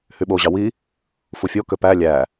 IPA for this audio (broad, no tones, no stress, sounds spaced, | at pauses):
h y ɓ o ʑ ɑ w i | f u fʲ o k ø p æ lʲ æ